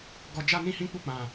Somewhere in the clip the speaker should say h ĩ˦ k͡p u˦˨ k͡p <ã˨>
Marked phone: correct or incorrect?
correct